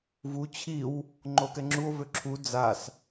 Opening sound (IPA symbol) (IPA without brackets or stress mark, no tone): v